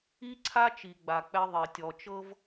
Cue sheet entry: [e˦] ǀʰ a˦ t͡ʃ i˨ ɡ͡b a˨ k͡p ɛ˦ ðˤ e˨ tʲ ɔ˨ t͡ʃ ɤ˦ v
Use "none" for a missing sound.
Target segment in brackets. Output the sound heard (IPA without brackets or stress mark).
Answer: i˦